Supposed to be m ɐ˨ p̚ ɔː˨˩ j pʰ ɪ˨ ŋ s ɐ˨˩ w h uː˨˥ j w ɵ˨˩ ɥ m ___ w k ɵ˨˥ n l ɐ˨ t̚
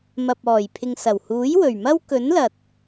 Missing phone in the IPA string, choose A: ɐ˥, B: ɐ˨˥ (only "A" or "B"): A